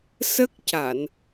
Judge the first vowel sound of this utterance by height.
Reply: mid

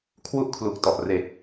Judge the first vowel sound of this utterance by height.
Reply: high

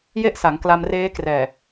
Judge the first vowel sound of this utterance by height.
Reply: mid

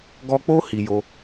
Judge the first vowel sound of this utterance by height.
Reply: mid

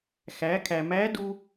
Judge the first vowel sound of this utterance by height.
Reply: low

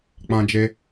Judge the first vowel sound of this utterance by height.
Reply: low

